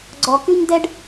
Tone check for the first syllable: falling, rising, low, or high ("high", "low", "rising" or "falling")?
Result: low